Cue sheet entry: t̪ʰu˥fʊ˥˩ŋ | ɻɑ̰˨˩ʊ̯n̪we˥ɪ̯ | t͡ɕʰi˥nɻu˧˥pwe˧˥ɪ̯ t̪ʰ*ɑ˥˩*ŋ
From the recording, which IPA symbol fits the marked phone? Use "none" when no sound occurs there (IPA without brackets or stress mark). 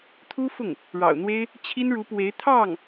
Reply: ɑ˥˩